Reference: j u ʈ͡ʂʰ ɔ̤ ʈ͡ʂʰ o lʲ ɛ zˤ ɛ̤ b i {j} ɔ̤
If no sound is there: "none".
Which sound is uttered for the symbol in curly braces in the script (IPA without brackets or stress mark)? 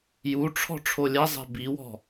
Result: w